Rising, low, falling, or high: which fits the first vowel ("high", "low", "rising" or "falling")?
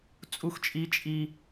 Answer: high